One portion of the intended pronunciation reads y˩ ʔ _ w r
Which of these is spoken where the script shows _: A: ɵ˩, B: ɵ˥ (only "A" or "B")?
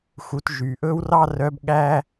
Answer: B